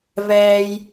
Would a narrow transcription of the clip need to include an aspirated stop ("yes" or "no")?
no